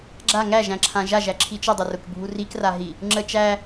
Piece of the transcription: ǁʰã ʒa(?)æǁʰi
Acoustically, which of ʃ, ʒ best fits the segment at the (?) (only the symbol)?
ʒ